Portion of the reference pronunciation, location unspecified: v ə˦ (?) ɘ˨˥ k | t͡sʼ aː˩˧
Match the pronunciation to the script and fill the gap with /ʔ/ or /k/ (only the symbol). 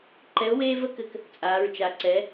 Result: k